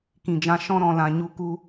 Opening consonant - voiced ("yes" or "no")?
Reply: no